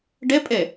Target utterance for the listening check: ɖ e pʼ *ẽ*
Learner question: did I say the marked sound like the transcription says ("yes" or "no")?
no